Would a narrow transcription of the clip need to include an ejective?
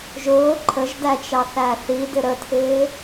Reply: no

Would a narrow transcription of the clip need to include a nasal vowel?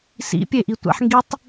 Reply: no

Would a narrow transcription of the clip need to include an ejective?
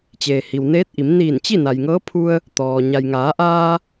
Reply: no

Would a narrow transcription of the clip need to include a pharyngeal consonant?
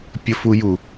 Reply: no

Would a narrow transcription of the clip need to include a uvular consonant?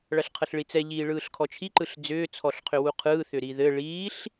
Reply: yes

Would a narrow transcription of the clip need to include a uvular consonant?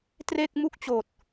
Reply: no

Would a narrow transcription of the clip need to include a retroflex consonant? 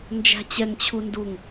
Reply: no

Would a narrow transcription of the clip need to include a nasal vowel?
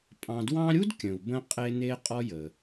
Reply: yes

